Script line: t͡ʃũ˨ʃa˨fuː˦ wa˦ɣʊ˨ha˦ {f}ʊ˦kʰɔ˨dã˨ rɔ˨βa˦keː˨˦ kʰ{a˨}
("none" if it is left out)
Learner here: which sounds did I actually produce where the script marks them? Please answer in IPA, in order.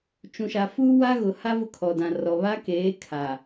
v, a˨

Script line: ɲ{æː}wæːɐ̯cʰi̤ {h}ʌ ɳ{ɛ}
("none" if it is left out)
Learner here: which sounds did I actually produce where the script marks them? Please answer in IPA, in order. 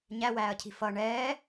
æ, f, ɛː

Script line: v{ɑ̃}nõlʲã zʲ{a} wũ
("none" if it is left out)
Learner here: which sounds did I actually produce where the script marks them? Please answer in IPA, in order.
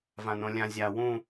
ã, a

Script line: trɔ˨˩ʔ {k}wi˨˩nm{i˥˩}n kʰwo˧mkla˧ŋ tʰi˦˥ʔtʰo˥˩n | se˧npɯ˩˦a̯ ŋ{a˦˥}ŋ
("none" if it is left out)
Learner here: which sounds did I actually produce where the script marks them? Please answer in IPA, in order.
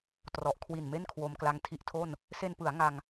kʰ, e˥˩, a˧

